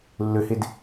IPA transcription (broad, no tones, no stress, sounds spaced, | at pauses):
lː ø h e d